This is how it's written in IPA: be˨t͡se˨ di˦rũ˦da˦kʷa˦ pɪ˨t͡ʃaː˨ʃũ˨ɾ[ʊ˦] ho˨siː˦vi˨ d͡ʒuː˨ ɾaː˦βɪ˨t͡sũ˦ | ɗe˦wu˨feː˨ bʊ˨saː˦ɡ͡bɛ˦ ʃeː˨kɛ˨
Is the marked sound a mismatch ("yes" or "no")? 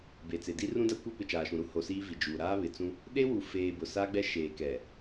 yes